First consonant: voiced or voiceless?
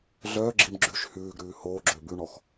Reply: voiced